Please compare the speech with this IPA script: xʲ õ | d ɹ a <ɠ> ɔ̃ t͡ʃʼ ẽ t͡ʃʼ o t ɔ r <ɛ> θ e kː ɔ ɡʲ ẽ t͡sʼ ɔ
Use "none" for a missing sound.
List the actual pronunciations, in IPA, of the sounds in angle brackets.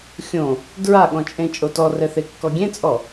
ɠ, ɛ

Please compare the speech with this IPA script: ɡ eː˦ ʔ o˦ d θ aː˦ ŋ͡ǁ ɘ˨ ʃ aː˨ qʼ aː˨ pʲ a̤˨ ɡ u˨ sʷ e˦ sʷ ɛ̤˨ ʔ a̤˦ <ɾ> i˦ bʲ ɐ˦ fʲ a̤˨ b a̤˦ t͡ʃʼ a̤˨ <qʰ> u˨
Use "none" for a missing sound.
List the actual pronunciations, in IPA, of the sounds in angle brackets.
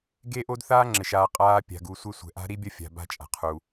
ɾ, qʰ

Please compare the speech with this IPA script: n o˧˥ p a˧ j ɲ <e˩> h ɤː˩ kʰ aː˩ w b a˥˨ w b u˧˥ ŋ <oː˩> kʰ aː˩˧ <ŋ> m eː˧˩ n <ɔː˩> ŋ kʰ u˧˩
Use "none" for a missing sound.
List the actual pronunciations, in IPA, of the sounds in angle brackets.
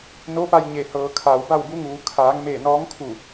e˩, uː˩, ŋ, ɔː˧˥

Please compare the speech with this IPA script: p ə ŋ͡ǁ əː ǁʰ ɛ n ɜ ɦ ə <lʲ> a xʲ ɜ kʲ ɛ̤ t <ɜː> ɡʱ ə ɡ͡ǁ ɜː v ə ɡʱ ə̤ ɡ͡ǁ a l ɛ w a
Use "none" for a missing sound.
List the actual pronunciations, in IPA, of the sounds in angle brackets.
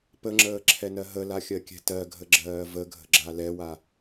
l, ɜ

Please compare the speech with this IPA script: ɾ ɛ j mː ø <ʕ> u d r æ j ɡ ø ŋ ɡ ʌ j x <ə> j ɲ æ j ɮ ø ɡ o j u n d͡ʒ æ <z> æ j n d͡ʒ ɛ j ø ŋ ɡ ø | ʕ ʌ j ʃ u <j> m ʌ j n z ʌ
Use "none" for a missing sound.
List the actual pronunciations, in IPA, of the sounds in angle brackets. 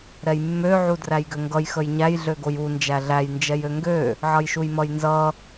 ʕ, ə, ɮ, j

